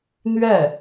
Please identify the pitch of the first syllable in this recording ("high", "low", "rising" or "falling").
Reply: falling